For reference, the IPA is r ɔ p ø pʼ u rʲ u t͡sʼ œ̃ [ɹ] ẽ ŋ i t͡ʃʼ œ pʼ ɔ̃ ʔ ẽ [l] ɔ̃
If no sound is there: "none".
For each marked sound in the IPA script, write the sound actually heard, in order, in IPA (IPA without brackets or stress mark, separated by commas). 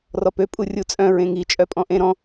ɹ, ɾ